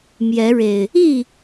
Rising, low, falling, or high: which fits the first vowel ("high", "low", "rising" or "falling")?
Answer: rising